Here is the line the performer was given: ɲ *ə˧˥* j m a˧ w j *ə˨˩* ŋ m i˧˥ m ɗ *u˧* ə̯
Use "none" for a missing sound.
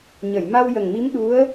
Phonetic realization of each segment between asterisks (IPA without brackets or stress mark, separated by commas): ə˨˩˨, ə˨˩, u˧˥